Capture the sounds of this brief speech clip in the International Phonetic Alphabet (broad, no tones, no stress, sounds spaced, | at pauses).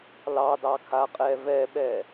l ɑ d ɑ kʰ a qʼ ɛ v ɛ ɓ ɛ